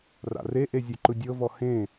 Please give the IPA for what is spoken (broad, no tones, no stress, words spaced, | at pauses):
ra̰reʔe zʲuǃɯdʲɤvɔ hẽ